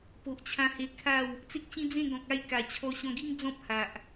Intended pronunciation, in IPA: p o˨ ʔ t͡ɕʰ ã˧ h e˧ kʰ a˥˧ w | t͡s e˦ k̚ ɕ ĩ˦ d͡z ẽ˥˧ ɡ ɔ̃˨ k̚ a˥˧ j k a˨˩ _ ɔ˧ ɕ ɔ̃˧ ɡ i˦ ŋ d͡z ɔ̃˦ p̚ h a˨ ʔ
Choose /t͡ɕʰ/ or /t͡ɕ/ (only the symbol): t͡ɕʰ